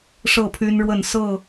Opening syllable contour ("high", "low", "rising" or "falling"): falling